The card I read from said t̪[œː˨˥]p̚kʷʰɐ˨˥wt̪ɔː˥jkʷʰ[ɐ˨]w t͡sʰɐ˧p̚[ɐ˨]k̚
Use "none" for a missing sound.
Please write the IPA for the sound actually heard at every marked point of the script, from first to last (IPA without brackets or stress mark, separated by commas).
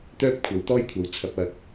œː˥, ɐ˨, ɐ˧